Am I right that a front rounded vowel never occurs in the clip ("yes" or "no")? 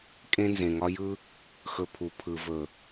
yes